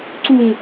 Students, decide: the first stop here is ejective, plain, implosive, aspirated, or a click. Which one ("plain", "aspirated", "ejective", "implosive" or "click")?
click